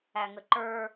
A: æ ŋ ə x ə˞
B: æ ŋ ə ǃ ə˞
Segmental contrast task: B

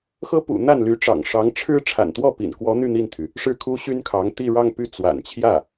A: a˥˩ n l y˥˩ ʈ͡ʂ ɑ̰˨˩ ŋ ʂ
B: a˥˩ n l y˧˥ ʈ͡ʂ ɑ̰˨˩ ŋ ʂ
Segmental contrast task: B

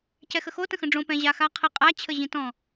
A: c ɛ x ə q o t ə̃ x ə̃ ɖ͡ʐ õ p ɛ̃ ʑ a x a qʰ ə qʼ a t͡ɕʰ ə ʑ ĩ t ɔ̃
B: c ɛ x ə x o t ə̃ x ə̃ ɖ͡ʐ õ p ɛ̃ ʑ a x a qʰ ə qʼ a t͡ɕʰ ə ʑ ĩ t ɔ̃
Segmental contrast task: B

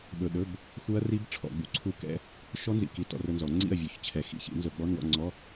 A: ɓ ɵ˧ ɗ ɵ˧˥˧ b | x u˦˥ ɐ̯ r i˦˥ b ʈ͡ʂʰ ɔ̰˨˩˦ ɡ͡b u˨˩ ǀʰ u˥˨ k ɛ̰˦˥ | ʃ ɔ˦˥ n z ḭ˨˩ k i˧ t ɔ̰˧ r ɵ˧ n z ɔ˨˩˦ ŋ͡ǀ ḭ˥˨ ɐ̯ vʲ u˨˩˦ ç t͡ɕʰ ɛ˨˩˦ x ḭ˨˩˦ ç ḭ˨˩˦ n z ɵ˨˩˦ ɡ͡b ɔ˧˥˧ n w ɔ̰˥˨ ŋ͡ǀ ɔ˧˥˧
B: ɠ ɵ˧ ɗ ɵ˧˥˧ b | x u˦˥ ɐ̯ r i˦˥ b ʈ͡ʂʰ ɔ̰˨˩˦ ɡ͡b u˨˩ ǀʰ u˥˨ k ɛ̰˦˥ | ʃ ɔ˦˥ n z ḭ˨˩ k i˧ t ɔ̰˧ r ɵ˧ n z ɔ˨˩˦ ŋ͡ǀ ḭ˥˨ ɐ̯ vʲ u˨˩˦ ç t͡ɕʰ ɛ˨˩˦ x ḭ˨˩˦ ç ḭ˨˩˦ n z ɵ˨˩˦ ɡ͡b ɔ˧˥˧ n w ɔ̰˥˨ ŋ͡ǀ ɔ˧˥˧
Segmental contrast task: A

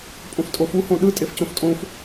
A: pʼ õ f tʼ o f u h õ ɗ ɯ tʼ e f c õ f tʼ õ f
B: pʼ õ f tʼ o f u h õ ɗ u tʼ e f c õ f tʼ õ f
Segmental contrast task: A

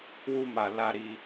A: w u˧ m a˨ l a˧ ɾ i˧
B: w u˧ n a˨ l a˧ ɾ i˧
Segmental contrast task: A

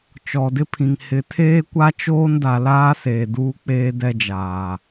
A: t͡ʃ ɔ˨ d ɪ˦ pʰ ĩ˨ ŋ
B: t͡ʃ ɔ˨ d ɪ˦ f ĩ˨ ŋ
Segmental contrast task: A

